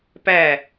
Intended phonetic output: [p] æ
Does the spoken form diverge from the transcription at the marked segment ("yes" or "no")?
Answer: no